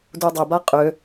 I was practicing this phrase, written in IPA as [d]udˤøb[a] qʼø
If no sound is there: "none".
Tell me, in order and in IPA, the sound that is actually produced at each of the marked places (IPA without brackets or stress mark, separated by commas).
d, a